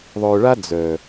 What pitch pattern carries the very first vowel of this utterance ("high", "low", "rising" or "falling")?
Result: low